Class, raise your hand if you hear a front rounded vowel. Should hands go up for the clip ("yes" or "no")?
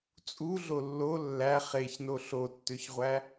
yes